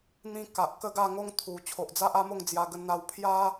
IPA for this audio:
n̪ĩ˧ ka˨ʔkə˥˧ɡa˥˧ŋo˦ŋ t̪ʰu˨˩ t͡ɕʰo˨ʔd͡za˦ʔa˦mo˥˧ŋ d͡zja˧ɡə˧nn̪a˧w pʰja˦

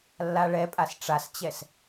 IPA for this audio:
lːaɭɛpʼas ʈ͡ʂast͡ɕɛs

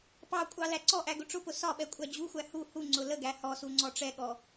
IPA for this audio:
pɑkʷʼɑ læǀɔʔæ ɡʊʈ͡ʂʊpʊ sɒɓɛ kʷʼæd͡ʑuxʷæ hu hu ŋ͡ǀʊləɡæ hɔsu ŋ͡ǀɔʈ͡ʂɛɠɔ

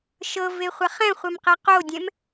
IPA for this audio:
ʃɤveχʷaχ ɛ̃χʷɛmqɛ qodʲɛ̃m

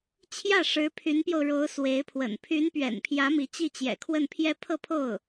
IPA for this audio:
t͡ɕʰjä˥˩ʂɻ̩˧˥ pʰy˧˥npjo˧ʊ̯ ɻo˧˥ʊ̯ swe˧˥ɪ̯pʰwə̰˨˩n pʰy˧˥npɥɛ̰˨˩npʰjä˧˥ mi˧˥ t͡ɕi˥˩t͡ɕjɛ̰˨˩kʰwə˥˩n pʰjɛ˥pʰɤ˥˧pʰo˥˩ʊ̯

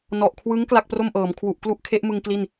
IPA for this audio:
nɔ˨˩ʔkʰwɯ˦˥ŋ kla˥˩k̚pro˥˩mʔɤː˩˦m kʰwu˨˩ʔ klu˥˩ʔkʰe˦˥ʔmɯ˧ŋ kli˥˩n

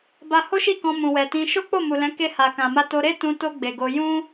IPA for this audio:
ba˦ ho˦ʃi˦˨kɔ̃˧ mũ˨wɛ˨tĩ˧ ʃo˦k͡po˦˨mu˨lɛ̃˨˦ ke˧ha˨kã˨ma˧ to˧ɾe˦ tũ˧to˧ ɡ͡be˨ɡo˧ jũ˦

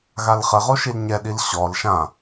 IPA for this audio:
ɣalχɘʁo ʃilɲɛɗil ɕɔl ʃã

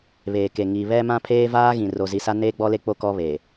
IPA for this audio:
βeː˨ke˨ ŋi˨βɛ˦ mã˦pʰeː˦ vaː˦ɣĩ˨ ro˨zi˨sa˦ neː˦ɡ͡bɔ˦le˦ k͡po˦ kɔ˦βe˨

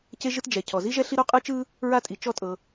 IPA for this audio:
ce˥ʒɯ˥t d͡ʒɛ˩ cʰɔ˩zi˥ʒɛ˥ ɬi˥ɾo˥qʼɯ˥t͡ʃɯ˥ | ɹa˥tʼi˩t͡ʃɔ˥tʼɤ˩

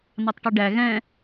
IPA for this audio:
nɑtˤʈɛɖæ ɣɛ̃

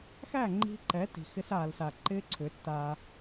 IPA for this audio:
xæ˦˨ŋ͡ǃi̤˧ ǃɛ˨˦ti̤˨ xɪ˧saː˨lsa˨ ǃɪː˦ǀʰʏ˨˦tːaː˧

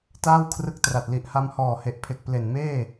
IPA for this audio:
taː˥˩wkʰrɯ˦˥k̚tra˨˩t̚ li˨˩ʔha˧mhɔː˨˩he˨˩ʔ pʰe˨˩k̚ple˨˩nmeː˥˩

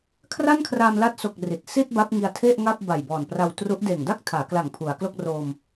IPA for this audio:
kʰra˥˩nkʰra˧mla˦˥t̚so˨˩k̚ ri˨˩t̚ si˥˩t̚ ba˦˥p̚ŋi˧a̯tʰe˥˩ʔŋa˥˩p̚ ba˨˩jbɔː˨˩npra˧wtru˦˥ʔ deː˨˩ŋda˥˩k̚tʰaː˩˦kla˨˩ŋ pʰu˩˦a̯klo˥˩k̚ro˧m

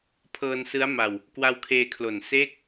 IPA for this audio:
pʰɤː˧nsɯ˦˥a̯ma˧w | kwa˧wkʰeː˧kʰlo˨˩n seː˥˩k̚

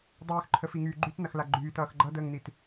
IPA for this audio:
dˤyːxǃʰəfiŋyː ɡ͡ǃytnɐxla ɡ͡ǃyːtʌːx ɡ͡ǃʌdəːŋnit

